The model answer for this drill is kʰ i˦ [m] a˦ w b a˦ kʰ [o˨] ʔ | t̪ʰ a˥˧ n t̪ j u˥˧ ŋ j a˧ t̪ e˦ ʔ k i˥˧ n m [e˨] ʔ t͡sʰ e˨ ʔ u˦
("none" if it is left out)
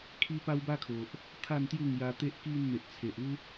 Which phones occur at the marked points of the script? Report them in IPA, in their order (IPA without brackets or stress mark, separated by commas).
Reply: p, o˨, e˨